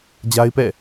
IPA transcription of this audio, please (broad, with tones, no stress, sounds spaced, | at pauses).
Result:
d͡ʑ a˦ ɪ̯ p ɛ̰˦˨